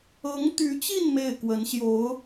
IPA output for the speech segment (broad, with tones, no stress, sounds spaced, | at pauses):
ɤ˧˥ ŋ t̪ y˧˥ t͡ɕ i˥˧ n m e˥˩ ɪ̯ k w ə˧˥ n ɕ j o˧˥ ʊ̯